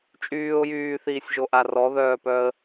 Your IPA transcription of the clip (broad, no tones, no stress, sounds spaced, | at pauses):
t͡ʃʼ yː ʊ̯ j yː θ iː sʲ ʒ o ʔ a r ɔ ð œː p œ ə̯